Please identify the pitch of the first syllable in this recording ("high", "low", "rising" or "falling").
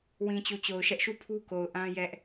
low